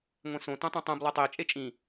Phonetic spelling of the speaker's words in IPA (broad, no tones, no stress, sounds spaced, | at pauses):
ŋʷ ẽ s õ t ũ tˤ ũ tˤ ũ b lˠ e tˤ e t͡ʃʼ e t͡ʃʼ ĩ